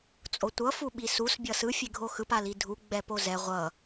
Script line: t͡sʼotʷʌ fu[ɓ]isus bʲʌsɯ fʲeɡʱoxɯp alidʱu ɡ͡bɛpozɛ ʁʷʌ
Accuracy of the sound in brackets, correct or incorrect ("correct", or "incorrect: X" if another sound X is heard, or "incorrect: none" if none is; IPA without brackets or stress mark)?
correct